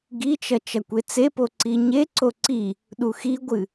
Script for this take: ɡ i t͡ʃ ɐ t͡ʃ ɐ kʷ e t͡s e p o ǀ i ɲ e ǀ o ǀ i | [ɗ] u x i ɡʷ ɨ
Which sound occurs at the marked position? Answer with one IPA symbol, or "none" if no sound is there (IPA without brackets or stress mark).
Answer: ɗ